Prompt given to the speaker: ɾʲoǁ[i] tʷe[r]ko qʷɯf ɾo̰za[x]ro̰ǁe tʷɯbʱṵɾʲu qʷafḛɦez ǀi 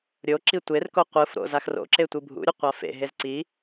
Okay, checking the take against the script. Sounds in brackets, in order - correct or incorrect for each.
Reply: correct, correct, correct

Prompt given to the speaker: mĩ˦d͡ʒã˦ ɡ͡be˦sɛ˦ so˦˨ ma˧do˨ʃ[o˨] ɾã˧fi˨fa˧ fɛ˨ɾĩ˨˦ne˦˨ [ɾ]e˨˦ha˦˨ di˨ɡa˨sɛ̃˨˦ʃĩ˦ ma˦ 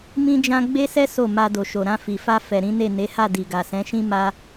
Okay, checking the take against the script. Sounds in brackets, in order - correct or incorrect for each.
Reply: correct, incorrect: n

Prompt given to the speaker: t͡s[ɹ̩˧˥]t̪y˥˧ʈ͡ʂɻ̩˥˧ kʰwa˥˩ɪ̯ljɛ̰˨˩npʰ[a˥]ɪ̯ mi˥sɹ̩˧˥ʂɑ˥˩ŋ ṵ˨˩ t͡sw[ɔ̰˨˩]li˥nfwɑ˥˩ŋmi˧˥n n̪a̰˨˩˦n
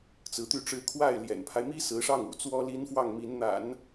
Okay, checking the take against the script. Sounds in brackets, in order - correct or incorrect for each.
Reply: correct, incorrect: a˦, incorrect: ɔ˥

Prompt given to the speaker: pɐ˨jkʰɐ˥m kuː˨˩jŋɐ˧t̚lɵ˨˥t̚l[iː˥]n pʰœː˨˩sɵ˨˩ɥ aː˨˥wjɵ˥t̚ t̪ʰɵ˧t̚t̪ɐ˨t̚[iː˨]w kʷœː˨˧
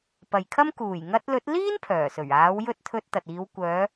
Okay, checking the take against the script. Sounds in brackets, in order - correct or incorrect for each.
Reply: correct, incorrect: iː˨˧

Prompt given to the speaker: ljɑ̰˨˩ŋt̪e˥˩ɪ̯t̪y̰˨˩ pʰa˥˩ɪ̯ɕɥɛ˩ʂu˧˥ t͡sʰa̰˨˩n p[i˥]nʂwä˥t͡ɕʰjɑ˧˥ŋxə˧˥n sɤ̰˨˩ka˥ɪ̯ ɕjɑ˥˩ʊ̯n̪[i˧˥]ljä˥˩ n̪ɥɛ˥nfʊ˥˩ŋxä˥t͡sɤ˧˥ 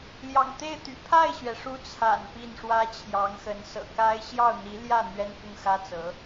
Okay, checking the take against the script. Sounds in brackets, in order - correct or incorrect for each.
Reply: incorrect: i˥˩, correct

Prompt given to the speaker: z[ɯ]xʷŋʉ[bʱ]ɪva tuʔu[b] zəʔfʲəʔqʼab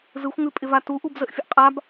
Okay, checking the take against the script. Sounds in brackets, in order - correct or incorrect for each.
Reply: correct, incorrect: pʼ, correct

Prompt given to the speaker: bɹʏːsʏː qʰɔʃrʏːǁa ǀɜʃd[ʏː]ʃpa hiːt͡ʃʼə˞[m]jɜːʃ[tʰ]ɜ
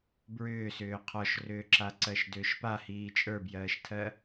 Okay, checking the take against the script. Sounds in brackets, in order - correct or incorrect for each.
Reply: correct, incorrect: b, correct

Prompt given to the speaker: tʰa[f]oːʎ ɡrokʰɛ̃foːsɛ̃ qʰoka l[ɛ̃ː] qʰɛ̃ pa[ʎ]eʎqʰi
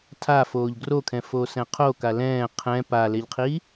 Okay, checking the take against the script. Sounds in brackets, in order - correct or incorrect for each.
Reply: correct, correct, incorrect: l

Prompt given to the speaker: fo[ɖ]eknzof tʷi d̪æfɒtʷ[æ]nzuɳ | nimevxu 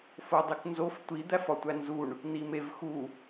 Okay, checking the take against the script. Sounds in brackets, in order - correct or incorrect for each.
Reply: incorrect: dˤ, correct

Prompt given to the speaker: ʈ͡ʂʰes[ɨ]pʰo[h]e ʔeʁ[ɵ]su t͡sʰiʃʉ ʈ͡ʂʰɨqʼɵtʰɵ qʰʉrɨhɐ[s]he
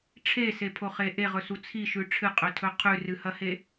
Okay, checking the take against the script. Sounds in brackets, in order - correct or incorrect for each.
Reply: incorrect: e, incorrect: χ, correct, incorrect: none

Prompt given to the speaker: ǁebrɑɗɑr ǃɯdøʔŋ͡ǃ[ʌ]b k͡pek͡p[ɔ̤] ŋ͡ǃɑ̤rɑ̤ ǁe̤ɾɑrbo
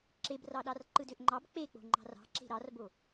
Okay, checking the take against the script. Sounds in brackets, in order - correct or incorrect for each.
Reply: incorrect: ɑ, incorrect: o̤

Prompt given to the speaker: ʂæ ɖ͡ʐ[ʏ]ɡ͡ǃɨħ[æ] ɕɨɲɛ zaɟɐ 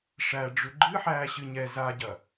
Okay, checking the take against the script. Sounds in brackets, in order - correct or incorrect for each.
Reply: correct, incorrect: æː

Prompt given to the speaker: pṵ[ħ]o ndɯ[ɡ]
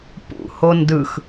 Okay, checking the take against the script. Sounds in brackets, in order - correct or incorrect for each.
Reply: incorrect: h, incorrect: x

